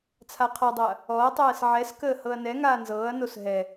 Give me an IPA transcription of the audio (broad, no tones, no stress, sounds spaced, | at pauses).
t͡sʰ a qʰ ɒ dˤ ɤ ɐ̯ | ɔ ɐ̯ tˤ ɛː s ʕ ɛ s k əː h ɤ ɐ̯ n ɛ ŋ aː n z ɤː ɐ̯ n o s ɦ ɛ